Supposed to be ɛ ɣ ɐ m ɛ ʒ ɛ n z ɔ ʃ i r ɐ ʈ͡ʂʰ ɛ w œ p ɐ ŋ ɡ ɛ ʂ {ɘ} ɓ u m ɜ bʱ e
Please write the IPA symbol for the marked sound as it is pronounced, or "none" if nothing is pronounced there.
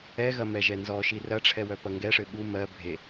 ɘ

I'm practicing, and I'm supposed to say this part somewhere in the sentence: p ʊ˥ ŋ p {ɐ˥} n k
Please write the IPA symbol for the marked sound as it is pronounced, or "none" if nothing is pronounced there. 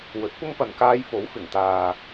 ɐ˨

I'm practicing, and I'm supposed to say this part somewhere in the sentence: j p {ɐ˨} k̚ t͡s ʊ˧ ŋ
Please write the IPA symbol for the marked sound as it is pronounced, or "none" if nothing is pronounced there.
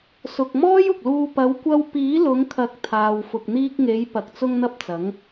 ɐ˨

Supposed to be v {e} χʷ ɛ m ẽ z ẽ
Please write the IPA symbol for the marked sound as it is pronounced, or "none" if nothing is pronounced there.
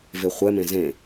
e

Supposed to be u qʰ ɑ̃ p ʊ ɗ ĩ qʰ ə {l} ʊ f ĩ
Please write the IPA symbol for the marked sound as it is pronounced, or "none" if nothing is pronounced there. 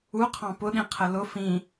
l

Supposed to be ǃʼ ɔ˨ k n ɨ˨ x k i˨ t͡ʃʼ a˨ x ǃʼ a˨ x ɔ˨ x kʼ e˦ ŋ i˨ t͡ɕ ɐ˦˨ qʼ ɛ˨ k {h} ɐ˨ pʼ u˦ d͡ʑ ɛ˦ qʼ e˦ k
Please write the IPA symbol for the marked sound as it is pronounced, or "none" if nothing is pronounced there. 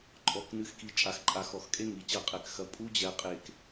x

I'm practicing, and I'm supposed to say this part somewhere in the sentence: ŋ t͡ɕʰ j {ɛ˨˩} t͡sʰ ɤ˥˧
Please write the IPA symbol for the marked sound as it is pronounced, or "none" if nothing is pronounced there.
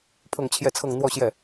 ɛ˥˧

